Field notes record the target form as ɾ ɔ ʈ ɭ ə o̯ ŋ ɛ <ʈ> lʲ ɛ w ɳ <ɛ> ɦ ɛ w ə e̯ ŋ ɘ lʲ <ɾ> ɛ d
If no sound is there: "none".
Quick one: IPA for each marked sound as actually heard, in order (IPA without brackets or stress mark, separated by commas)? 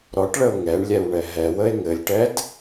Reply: ɳ, ɛ, ʈ